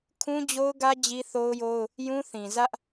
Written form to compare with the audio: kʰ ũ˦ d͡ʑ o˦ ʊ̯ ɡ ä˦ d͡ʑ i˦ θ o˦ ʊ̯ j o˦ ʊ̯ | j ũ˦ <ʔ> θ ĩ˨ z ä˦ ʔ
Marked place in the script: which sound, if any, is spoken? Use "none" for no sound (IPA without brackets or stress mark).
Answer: none